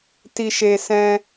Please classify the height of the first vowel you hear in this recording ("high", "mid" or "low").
high